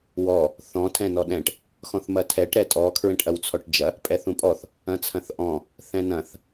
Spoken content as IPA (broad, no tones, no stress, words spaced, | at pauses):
wɔ | θɔ̃ tʰɛ̃nɔɗɛ̃ʈ | xɔ̃θmɐtʰɛʈ ɾɛtʼɔ kʰɹɛ̃ʈʔɐwt͡sʰɔʈd͡ʒɐ | pʼɛθũpʼɔθ | ɐ̃t͡sʰɐ̃θʔɔ̃ | θɛ̃nɐ̃θ